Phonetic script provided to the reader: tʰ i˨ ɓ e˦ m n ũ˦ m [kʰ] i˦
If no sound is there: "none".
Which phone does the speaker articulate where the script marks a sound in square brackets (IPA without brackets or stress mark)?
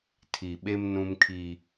kʰ